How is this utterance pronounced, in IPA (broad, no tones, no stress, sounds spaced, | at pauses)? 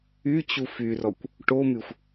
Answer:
y t͡ɕ u f y r ɔ kʷ | ʈ o m y xʷ